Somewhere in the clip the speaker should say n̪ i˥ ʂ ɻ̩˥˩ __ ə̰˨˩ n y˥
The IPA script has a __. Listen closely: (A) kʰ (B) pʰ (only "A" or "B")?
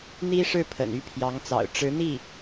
B